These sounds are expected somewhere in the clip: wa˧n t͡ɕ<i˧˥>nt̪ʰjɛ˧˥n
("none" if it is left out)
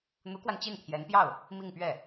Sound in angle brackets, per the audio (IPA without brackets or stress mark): i˥˩